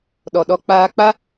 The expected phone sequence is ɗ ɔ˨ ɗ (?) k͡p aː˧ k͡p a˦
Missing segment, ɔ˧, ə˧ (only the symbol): ɔ˧